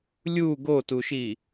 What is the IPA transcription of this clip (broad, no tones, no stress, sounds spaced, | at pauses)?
lʲ u ɡ o t u ʃ i